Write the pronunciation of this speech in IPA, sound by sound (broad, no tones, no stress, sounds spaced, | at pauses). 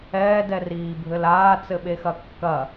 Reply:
ɛː d ɛ r iː bʱ ɘ l aː t͡s ɘ ɓ e x ɐ kː ɐ